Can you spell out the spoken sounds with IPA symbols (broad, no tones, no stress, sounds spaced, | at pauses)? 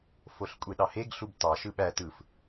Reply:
f o ɬ kʷʼ e ɗ ɑ h e ɡ ɬ u b t ɑ ʃ ɯ ɓ æ t ɯ f